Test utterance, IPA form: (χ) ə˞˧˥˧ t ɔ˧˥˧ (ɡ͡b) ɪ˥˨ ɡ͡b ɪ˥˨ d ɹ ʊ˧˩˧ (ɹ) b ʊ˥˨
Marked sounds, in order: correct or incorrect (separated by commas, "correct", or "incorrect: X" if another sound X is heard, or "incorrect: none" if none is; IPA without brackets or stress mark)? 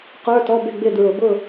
incorrect: q, incorrect: b, incorrect: none